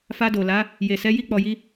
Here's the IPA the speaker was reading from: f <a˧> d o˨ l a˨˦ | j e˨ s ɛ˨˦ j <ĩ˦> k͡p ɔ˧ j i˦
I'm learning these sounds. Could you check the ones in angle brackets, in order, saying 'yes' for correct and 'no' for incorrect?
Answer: yes, no

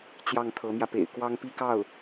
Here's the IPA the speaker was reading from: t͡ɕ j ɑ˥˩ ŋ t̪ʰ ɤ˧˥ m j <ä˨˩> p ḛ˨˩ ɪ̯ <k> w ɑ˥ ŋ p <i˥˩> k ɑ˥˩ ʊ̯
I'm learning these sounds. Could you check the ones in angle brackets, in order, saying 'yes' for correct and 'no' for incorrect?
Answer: no, yes, no

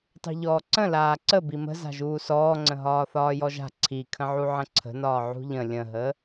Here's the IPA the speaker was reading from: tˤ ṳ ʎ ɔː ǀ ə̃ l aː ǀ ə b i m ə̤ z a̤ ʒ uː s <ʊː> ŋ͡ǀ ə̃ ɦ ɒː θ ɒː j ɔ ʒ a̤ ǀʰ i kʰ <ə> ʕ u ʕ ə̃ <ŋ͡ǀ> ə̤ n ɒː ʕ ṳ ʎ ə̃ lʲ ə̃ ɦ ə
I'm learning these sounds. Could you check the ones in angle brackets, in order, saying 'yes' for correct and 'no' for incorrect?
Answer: no, no, no

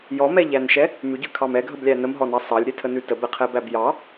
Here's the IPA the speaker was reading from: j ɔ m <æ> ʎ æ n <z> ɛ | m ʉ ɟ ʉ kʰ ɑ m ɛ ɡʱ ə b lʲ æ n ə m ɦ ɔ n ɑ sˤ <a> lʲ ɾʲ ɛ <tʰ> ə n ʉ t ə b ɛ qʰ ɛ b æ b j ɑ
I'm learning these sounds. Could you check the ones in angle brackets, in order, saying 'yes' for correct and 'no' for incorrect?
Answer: no, no, no, yes

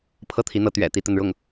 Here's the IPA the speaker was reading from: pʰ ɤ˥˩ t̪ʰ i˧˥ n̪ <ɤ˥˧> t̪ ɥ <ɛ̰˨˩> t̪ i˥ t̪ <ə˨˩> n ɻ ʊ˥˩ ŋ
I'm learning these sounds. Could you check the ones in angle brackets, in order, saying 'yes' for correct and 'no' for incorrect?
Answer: no, yes, no

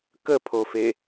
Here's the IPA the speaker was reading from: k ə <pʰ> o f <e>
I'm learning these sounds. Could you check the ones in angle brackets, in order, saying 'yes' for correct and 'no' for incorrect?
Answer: yes, yes

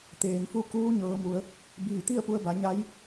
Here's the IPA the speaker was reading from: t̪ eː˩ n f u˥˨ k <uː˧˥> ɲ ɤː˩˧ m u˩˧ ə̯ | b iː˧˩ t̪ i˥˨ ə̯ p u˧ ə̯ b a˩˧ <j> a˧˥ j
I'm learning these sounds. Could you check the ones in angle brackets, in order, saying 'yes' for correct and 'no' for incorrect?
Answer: yes, no

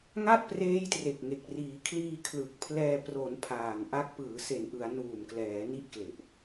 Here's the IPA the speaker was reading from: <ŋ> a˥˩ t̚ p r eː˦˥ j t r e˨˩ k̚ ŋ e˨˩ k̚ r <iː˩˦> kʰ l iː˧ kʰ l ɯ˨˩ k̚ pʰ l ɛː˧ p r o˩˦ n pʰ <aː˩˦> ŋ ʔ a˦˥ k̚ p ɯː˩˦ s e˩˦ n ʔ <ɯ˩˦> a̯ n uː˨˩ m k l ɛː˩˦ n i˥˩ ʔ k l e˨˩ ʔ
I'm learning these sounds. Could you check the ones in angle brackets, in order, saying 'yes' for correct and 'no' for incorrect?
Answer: yes, yes, no, yes

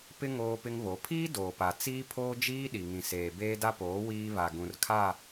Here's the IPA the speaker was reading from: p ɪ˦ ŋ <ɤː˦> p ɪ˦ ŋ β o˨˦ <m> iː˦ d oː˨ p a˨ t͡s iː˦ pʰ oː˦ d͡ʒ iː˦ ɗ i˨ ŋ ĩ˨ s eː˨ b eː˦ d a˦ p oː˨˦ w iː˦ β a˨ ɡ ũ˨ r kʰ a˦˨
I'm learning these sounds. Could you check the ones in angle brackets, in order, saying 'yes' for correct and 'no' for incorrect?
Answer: no, no

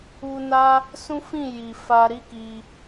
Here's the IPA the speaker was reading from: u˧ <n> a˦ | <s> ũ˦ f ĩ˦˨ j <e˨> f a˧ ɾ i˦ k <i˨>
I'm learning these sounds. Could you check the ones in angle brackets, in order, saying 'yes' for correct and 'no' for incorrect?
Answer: yes, yes, no, no

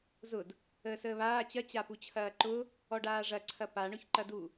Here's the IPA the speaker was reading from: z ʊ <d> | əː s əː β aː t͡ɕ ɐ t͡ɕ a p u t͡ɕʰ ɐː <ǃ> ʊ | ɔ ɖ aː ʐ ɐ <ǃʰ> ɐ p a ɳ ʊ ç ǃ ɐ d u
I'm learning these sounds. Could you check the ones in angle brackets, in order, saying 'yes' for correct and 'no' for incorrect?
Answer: yes, yes, no

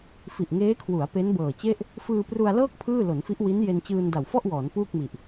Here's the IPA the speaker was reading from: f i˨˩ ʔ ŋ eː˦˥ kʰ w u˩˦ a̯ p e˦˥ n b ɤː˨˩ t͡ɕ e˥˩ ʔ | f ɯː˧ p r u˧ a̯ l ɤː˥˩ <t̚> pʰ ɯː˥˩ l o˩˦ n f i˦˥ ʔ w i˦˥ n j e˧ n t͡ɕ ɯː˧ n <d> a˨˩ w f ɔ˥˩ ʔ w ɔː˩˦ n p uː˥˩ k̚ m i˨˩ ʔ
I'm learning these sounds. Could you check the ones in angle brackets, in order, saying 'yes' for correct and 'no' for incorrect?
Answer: no, yes

